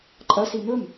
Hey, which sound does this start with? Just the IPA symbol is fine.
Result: ǃʼ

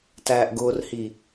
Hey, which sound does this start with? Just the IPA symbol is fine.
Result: t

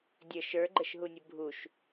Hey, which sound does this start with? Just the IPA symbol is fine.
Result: dʲ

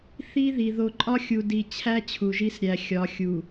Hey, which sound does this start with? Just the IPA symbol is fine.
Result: θ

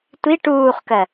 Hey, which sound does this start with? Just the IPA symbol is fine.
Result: tʷ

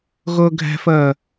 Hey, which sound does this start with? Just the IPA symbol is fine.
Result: ɣ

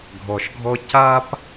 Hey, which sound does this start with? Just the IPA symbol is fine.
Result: ɡʱ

